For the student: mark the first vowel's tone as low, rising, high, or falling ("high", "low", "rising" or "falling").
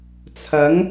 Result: rising